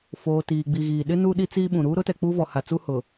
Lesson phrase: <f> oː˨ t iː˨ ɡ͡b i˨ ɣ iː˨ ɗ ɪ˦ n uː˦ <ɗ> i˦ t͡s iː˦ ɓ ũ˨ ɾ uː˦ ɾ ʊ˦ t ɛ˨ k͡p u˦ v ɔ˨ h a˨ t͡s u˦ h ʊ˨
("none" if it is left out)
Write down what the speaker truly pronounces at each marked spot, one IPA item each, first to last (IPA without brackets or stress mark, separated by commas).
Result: f, ɗ